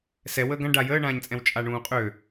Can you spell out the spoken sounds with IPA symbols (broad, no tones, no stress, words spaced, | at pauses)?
sɛ wəːɡã ɖa jəːɳãːɲt͡sʼɛ̃w t͡ʃʼaɳũːqʼø